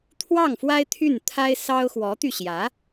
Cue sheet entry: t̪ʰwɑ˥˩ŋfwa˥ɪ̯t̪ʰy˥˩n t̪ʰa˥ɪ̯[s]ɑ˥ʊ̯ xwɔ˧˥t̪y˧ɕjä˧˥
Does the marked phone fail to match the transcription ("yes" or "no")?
no